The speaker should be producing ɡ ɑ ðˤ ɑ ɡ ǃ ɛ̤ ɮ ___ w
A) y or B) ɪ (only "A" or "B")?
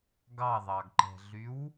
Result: A